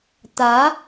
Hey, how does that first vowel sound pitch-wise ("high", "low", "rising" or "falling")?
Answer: rising